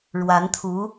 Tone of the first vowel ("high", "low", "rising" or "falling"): rising